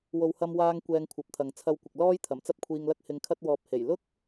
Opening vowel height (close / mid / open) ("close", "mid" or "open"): mid